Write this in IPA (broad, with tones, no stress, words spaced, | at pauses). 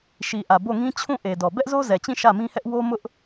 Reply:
ʃi˨ ʔä˨bo˦˨ŋĩ˦ t͡ɕʰũ˦˨ʔe˨dɔ˨ bɛ˦ʔzo˦zɛ˨t͡ɕĩ˦˨ ʃä˦˨mĩ˦hɛ˦ʔ wo˦mʊ˦ʔ